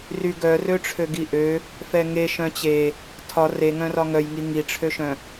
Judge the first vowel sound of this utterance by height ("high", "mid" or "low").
high